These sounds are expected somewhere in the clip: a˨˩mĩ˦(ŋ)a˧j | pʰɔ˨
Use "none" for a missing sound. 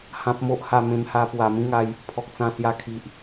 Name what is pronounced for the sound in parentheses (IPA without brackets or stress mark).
ŋ